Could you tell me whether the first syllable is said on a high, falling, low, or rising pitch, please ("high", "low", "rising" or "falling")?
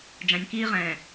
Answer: low